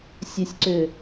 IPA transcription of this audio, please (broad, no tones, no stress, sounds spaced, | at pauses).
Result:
sʲ ə sʲ ǀ ʏː